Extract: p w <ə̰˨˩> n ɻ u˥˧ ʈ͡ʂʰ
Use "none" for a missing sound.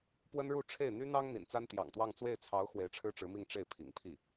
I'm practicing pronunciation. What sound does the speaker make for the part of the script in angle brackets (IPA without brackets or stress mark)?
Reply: ə˥